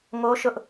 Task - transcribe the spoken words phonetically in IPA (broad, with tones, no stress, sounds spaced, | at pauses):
ŋ o˦ ʃ ʊ˦ ʔ